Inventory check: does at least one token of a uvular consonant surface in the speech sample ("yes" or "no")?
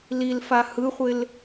yes